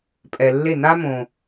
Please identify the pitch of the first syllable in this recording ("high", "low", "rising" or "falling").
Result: low